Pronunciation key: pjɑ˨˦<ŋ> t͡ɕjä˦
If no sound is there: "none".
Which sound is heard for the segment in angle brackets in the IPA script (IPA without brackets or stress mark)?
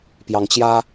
ŋ